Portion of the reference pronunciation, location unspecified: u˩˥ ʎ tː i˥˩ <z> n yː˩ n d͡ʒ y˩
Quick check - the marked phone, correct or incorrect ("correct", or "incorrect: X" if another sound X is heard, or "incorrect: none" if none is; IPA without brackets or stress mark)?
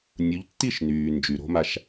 incorrect: ʃ